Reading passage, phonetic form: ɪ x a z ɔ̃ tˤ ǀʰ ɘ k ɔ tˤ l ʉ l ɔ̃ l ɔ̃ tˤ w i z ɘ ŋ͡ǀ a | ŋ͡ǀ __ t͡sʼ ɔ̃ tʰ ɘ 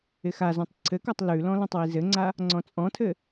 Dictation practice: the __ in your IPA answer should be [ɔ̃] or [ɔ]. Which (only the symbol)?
ɔ̃